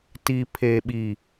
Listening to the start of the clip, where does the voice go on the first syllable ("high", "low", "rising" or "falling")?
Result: low